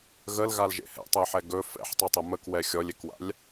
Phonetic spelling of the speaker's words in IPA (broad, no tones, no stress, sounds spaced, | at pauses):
ɣ ə l ɣ a l ʒ ḛ h ɛ̰ tˤ ɛ ħ ɛ ɡ ɵ f ɛ̰ ħ tˤ u tˤ ə m ə k w ɛ xʲ ɔ lʲ e k w a̰ lʲ